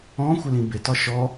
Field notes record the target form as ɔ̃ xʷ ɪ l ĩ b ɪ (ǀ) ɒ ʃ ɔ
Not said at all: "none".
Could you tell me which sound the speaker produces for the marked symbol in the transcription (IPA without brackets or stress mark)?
t